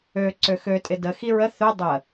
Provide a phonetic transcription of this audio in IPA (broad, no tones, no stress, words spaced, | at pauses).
ø ǀøxø tʼɪdə xiɹə θø dˤə